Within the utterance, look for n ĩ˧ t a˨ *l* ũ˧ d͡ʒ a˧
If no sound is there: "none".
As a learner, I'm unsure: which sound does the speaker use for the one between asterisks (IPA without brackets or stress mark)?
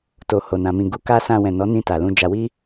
l